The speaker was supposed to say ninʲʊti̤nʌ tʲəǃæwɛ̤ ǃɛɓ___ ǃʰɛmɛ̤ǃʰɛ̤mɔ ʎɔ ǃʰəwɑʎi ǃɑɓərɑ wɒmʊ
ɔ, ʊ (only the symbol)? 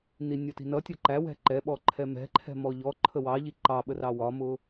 ɔ